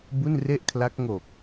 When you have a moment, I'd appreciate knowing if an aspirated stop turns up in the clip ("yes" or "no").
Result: yes